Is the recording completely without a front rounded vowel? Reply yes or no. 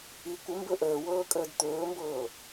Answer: yes